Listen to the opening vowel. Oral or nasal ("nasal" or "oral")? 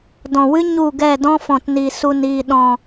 nasal